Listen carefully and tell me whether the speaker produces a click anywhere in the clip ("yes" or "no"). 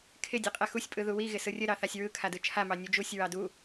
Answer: no